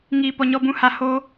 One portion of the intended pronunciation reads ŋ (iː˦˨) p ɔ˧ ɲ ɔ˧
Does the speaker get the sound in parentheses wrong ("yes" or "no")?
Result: yes